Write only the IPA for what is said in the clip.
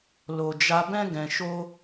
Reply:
l o˨ d͡ʒ a˧ b ɛ̃˦ ɡ ɛ̃˧ ʃ o˦

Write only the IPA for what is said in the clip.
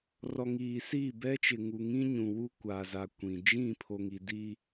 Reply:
r ɔ˨ ŋ iː˨ s iː˦˨ b ɛ˦ t͡ʃ ɪ˨ ŋ u˨ ŋ ĩ˦ ɲ ũ˨ w u˦ kʷ aː˨ z a˨ kʷ ĩ˨ d͡ʒ ĩ˦˨ pʰ o˨ ŋ i˨ d i˦

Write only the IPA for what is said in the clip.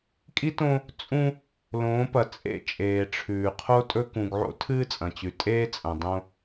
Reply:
kʼ i˦ t õ˦ | t͡sʼ ũ˦ | l õː˨˦ p ɐ˨ t͡sʼ ḛ˦˨ t͡ʃʼ eː˨ ʈ͡ʂʰ ʉː˨ qʰ o˦ tʼ ɵ˦ k ũ˨ ɡ ʕ o̰˦ tʰ ɨː˦ t͡sʼ ɐ̃˨ t͡ɕ ʉ˨ tʼ eː˦ t͡sʼ ɐ̃˨ dˤ õ˦

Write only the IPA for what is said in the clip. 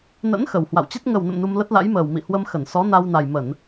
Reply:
n ə̰˧˥ n x ə˨˩ w h w a̰˧˨ w t͡ɕ e˦˥ t̚ ŋ ə˨˩ w n ə̰˧˨ m n u˧ m l ə˦˥ t̚ l a̰˧˥ j m əː˨˩ w m ḭ˧˨ h w ə˧ m x ə˧˩ n s ɔ˨˦ n a˧ w n a˨˩ j m ə˧˩˨ n

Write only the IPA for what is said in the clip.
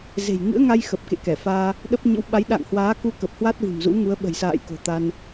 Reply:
z e̤˨˩ j ŋ ɨ̰˧˥ ə̯ ŋ a˧ j x ə˨˩ p̚ k ḛ˧˨ k ɛ˧˩ f aː˧ | ɗ ə˦˥ p̚ ɲ ɨ̰˧˥ w ɓ a˨˦ j ɗ a̰ː˧˨ ŋ h w aː˨˦ k u˧ k ə˨˩ p̚ h w a˦˥ t̚ v ɨ̤˨˩ m z ṵ˧˥ ŋ u˨˦ ə̯ ɓ ə̤˨˩ j s a̰ː˧˨ j k o̤˨˩ t̪ a˧ n

